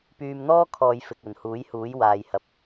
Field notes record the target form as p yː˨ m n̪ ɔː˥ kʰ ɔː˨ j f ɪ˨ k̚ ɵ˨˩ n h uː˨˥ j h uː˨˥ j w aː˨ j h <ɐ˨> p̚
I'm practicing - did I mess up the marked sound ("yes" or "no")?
no